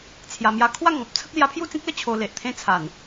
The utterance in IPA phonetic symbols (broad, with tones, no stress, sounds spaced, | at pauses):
t͡sʰ j a˨˩ m j a˧ kʰ w a˥˧ ŋ ɔ̃˨ p̚ t͡sʰ ə˦ k̚ l j a˧ pʰ j u˥˧ t͡s ĩ˦ k̚ l ə˥˧ t͡ɕʰ o˨˩ l e˨ ʔ t̪ʰ ẽ˥˧ t͡sʰ a˨˩ n